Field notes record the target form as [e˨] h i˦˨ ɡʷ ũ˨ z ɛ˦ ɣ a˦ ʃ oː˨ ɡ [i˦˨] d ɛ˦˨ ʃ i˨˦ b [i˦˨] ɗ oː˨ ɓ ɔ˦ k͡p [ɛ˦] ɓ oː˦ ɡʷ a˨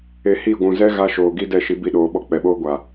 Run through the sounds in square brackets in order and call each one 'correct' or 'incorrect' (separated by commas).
correct, incorrect, correct, incorrect